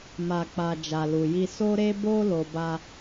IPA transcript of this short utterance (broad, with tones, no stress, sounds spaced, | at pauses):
m a˨ k͡p a˨ d͡ʒ a˨ l u˨ j i˧ s o˧ ɾ e˧ b o˧ l o˧ b a˦